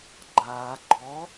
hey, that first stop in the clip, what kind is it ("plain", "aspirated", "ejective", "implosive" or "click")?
click